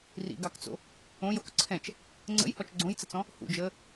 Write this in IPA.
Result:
rḭɡɑkt͡so̰ | õjok ǀʰɛ̃t͡ʃ | ŋ͡ǀə̰jhɔt͡ʃ ɡ͡ǀõjt͡sət͡sɔ̃ | hṵd͡ʒəː

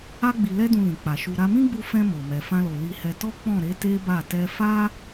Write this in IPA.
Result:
a˧ɡ͡bi˨lɛ˧dũ˨ lĩ˨k͡pa˨ ʃu˨ɾa˧mĩ˦ɡ͡bu˧ fɛ̃˧ mo˨mɛ˨ fã˧lo˨ li˧hɛ˧ tɔ˦k͡pɔ̃˦˨ɾe˨˦ te˦ba˦˨ tɛ˧fa˦

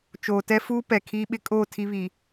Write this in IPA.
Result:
t͡ʃoː˨tɛ˦fuː˦ pɛ˨kʰiː˦ ɓɪ˦ kʼoː˦˨ tʰi˦βiː˨

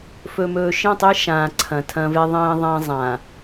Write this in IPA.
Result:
fɵ˨mɵː˨ʃĩ˦˨tˤi˦ ʃãː˨ǀʰɐ̃˨ tʰɐ̃˦ve˦ðˤĩː˦ ðˤã˦ zˤã˨

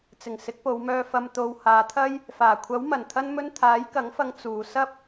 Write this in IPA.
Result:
t͡sɪ˨˩ŋ sɪ˨˥k̚po˨˧wmœː˧fɐ˧m t̪o˨w haː˨˧t̪ʰɐ˥j | faː˨˩ kʷʰɐ˨˥wmɐ˨˩n t̪ʰɐ˥nmɵ˥n t̪ʰaː˨˥jkɐ˨˥ŋfɐ˧ŋ t͡suː˨ sɐ˥p̚

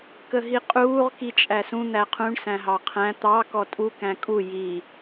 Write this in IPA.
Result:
kəɦiqʼuːʁ kit͡ʃʼæsũ n̪æqʰũɳ sæ̃ɦɑqʰæ̃ t̪ɑ kɔtʼu kæ̃kʼu ji

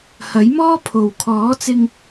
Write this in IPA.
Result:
hɐ˨˥jmɔː˥pʰo˨w kʰɔː˨˥t͡sɪ˧ŋ

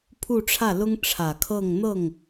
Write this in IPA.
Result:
pʰu˥˧ʈ͡ʂʰä˥˩lʊ˥ŋ ʈ͡ʂʰä˨˩kʰɤ˥˧ŋn̪ɤ˥˩ŋ

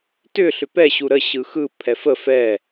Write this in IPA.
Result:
tʏ ɬʏpɛ ɕuɾə ɕɯxɯ pʰɛfə fɛ

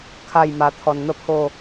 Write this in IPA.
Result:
kʰa˥˧jma˧ t̪ʰɔ˧nn̪ə˦pʰo˥˧

